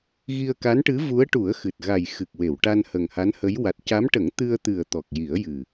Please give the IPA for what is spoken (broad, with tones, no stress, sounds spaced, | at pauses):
ɣ i˧ ə̯ k a˧˥ n ʈ ɨ˧˥ v u˧˥ ə̯ ʈ u˨˩˦ ə̯ x ɨ˨˩ t̚ ɣ a˨˩ j x ɨ˨˩ k̚ w e˨˩˨ w ʈ a˧ n h ə˨˩ ŋ h a˧˥ n h ə˧˥ j w a˨˩ t̚ c a˧˥ m ʈ ə˨˩˦ ŋ t̪ ɨ˧ ə̯ t̪ ɨ˨˩ ə̯ t̪ ɔ˨˩ k̚ j i˨˩˦ ə̯ j ɨ˨˩